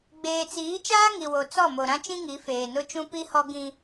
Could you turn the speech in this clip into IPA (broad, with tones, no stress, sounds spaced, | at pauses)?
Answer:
ɡ͡b eː˨ t͡s iː˨˦ t͡ʃ aː˦ ŋ i˨ w o˨ t͡s ɔ˦˨ m o˨ ɾ ã˦ t͡ʃ ĩ˦ ŋ i˨˦ f eː˨ n ʊ˦ t͡ʃ ũ˦ p i˦ h ɔ˦ ɡ ĩ˦